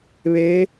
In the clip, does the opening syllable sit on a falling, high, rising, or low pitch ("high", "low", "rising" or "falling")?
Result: rising